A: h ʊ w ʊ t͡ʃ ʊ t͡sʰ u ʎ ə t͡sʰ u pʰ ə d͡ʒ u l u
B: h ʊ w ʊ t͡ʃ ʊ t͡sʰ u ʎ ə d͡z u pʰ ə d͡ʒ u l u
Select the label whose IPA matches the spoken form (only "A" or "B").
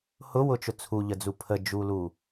B